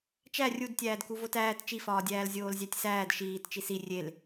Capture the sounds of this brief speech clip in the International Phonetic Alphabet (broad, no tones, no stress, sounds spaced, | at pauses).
t͡ʃ æ rʲ u d tʲ æː d k u v o t æː t t͡ʃ i f ɒː dʲ æː l zʲ oː l zʲ æ tʲ s æː d ʃ iː t t͡ʃ i s i rʲ e l